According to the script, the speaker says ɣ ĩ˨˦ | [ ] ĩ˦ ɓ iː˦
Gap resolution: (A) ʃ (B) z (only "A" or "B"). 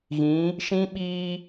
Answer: A